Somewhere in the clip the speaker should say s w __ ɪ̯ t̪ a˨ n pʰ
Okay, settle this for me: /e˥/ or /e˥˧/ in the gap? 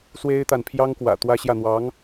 e˥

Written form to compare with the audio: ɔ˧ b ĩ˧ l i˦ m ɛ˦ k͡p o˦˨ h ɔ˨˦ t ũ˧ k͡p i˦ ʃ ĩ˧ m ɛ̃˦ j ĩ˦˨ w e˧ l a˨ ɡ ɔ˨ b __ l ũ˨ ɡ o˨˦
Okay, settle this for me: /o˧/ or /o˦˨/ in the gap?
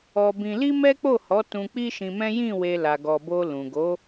o˧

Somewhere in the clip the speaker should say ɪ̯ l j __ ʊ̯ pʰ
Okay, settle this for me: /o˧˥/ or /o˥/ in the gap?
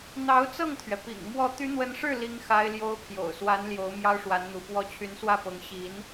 o˥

